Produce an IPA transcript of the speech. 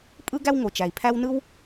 pʼ ɯ˥ ɡ æ˥ w ŋ o˩ t͡ʃ æ˩ i̯ pʰ æ˥ w n ɯ˥ w

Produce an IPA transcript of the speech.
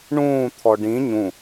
ɳ ũː t̪ʰ ɔ ɖ ĩ ɲ ũ

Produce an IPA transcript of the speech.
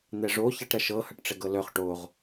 n̪ ɛ ʐ o ç a ʈ ɾ ɐ ʃ ɤ h ɐ ʈ ʈ͡ʂ ɛ ɡ ɤ l œ χ ʈ o ʁ

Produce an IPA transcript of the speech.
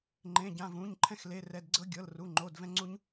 ŋ͡ǃ ẽ˧˥˧ ɟ ã˧˥˧ v ũ˧˥˧ ɲ ǃʰ ɛ̃˥ x l e˧˥˧ r ɛ˧˥˧ d ɡ͡ǀ ɤ˥ ɡʲ ɤ˧˥˧ l r u˧˥˧ ŋ͡ǃ o˧˥˧ d v ɛ̃˥ ŋ͡ǀ u˥ ɲ

